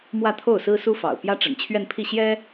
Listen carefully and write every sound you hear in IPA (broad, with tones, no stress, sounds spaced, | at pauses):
m w ä˥˧ t̪ʰ o˥˩ ʊ̯ s ɹ̩˥ s u˥ f ɑ̰˨˩ ʊ̯ p j ä˥ ʈ͡ʂ ə̰˨˩ n t͡ɕʰ ɥ ɛ˥˧ n pʰ i˥˩ ɕ j ɛ˥